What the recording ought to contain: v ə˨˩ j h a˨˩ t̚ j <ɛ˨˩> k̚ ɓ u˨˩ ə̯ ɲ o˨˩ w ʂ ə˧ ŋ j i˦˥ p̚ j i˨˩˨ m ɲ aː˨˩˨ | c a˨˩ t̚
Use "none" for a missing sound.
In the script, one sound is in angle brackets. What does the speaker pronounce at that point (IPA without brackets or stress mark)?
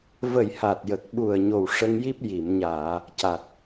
ə˨˩